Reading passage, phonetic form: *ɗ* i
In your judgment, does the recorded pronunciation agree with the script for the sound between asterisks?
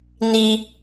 no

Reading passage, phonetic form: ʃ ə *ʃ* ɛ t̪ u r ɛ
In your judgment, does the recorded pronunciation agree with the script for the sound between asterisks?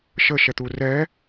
yes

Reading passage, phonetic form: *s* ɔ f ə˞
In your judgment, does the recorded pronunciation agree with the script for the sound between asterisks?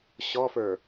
no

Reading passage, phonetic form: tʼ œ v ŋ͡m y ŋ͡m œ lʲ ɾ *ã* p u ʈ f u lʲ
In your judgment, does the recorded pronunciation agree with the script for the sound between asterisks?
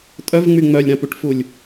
yes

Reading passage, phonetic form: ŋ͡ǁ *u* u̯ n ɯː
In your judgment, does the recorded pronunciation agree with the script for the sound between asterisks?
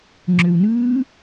no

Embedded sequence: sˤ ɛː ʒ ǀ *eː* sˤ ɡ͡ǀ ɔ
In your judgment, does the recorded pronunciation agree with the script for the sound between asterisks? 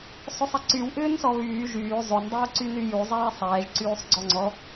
no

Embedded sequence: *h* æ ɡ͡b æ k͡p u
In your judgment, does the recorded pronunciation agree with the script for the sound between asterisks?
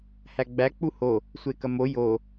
yes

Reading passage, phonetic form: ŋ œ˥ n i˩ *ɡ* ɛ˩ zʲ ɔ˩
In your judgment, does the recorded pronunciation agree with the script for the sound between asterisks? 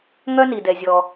no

